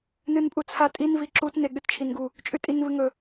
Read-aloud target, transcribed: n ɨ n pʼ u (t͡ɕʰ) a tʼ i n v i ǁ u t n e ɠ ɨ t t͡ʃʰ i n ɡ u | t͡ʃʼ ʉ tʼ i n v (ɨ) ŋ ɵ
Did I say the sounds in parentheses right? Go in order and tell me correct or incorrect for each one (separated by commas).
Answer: incorrect, correct